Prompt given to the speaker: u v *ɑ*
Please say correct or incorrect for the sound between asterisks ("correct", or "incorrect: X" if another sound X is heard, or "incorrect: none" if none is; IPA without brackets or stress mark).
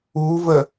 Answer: incorrect: ə